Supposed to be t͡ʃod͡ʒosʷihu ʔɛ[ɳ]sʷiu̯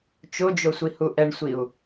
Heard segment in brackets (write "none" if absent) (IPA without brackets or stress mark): ɳ